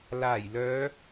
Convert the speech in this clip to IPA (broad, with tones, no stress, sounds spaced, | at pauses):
l aː˨˩ j l œː˨˧